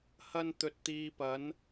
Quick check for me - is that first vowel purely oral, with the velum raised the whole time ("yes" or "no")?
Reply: yes